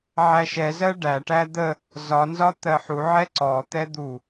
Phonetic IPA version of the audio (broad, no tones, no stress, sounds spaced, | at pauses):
ʕ æ ʃ ɛ z ɜ ɖ æ ʈ æ d̪ ə | z ɒ n z ɒ t̪ ɜ ħ u ʕ ɛ ǀ ɔ t̪ ɛ d̪ u